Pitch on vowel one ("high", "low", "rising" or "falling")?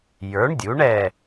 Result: rising